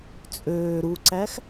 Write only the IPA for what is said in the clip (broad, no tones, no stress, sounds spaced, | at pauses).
t͡sʼ øː ɾ u ǀ æ x